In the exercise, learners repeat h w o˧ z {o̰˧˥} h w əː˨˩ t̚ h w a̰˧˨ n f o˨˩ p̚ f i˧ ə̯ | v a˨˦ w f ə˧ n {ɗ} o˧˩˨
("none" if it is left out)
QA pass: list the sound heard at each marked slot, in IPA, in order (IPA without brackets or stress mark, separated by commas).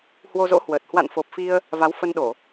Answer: o̰˧˥, ɗ